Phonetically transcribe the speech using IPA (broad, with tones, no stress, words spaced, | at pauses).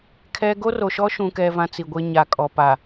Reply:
kʰɛ˦ ɡo˦ ro˨ʃɔ˦ʃũ˨kɛ˨ vã˦t͡si˨ɡʷe˦ ɲa˨kʼɔ˨pa˨